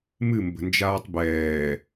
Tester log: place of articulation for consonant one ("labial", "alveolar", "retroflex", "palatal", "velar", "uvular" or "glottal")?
labial